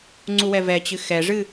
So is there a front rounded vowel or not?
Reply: no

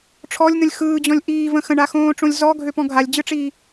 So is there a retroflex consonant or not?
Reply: yes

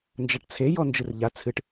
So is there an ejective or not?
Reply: no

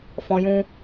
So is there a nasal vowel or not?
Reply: yes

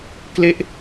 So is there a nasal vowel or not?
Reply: no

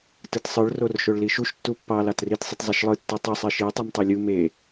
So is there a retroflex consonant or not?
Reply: yes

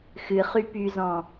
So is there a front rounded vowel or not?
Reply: yes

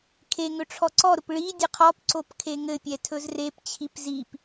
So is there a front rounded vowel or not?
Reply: no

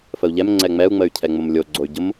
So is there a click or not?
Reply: yes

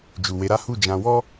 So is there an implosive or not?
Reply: no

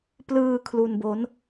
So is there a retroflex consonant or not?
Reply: no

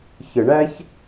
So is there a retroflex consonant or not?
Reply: yes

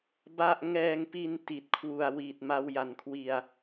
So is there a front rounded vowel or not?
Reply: no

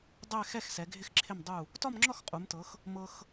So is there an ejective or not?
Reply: yes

